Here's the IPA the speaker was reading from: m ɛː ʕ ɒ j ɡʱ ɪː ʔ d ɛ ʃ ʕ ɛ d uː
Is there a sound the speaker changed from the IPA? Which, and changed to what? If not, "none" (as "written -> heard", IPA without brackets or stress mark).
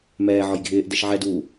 none